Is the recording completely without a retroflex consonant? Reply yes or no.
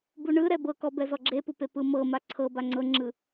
no